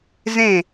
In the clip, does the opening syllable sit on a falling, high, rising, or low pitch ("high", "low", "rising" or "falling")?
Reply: falling